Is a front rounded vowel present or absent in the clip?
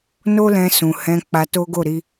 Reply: absent